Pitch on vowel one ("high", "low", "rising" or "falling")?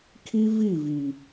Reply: high